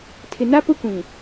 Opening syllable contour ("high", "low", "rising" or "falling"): low